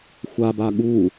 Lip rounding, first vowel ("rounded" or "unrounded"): unrounded